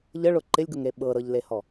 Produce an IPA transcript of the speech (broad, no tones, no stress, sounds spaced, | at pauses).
ʎ ə ɭ ʊ ǃ ɪ lʲ ɡ ʊ ŋ ɾ e ɓ ɤ ɾ ɤ ʎ l e h ɔ